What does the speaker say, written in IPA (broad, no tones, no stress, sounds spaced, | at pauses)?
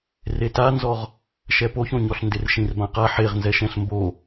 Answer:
r e t a n z ɔ ʁ | ʃ ɛ p o ç õ ɲ ɔ ɬ n d ɪ r ʃ ĩ r b ã q a ħ e ʁ n z ɛ ʃ ɛ̃ ɬ m b o